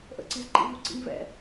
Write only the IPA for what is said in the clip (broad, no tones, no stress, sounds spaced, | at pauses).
ʔ ə̰ ǀ i z ǃ ḭ v u ǀ ḭ ŋ v ɛ̰